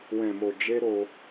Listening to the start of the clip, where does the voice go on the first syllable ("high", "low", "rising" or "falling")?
low